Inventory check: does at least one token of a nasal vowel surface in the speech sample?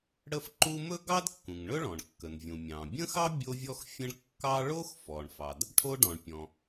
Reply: yes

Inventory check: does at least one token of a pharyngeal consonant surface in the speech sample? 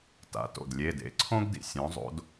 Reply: no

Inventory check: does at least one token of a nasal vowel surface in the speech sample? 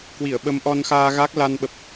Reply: no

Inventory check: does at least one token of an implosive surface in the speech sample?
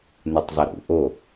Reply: no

